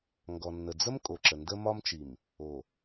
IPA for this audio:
ŋ ɡ ɔ˨ nː ə˨ d͡z ə˦ m kʼ o˨ ǁ ə˨ n d ə˦ m ɒ˦ m t͡ʃ i˨ m | o˨

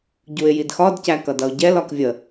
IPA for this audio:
ɟ u ɪ̯ j i d x ɒ d c æ k ʌ d ʌ ʊ̯ ɟ ɛ l ɒ k vʲ ə

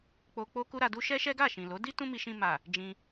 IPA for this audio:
k͡p o˧ k͡p o˦ k u˦ ɾ a˧ d u˦ ʃ ɛ˦ ʃ ɛ˦ ɡ a˦˨ ʃ ĩ˨ l o˨˦ d i˦ t ũ˦ m i˧ ʃ ĩ˧ m a˨ | d͡ʒ ĩ˧

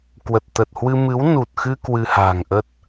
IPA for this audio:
k w ə˨˩ t̚ t̪ ə˨˩ t̚ h w ɨ˧ m ɨ˨˦ w n u˨˩ t̚ x ɨ˧ k w ɨ˧ h a̤˨˩ ŋ ʔ ə˦˥ t̚

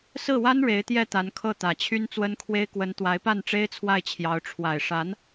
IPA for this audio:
s ɹ̩˥˩ w a˥ n ɻ e˧˥ ɪ̯ t̪ j ɛ˥˩ t̪ a˧˥ n kʰ ɤ˥˩ t̪ ä˨˩ t͡ɕʰ y˥ n t͡s w ə˥ n kʰ w e˥ ɪ̯ k w ə˧˥ n t̪ w a˧˥ ɪ̯ p a˥˩ n ʈ͡ʂ e˥ ɪ̯ t͡sʰ w a˥˩ ɪ̯ t͡ɕʰ j ɑ˧˥ ʊ̯ ʈ͡ʂʰ w a˨˩ ɪ̯ ʂ a˧˥ n

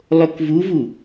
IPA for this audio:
lˠ o k v u v u

